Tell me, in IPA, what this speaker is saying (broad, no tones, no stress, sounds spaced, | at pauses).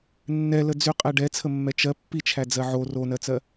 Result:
nː ɛ l ə d͡z y qʼ ɛ ɖ ɛ t͡sʰ ə mː ɛ t͡ʃ ɜ pː i t͡ʃʰ æ d͡z ɜ ʕ o r o n ɜ t͡s ɜ